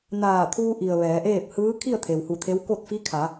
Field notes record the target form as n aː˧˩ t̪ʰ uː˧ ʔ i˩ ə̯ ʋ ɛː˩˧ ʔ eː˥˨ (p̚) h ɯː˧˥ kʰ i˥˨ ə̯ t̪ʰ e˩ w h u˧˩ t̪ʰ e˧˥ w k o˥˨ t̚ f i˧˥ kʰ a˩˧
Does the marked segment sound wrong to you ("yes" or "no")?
no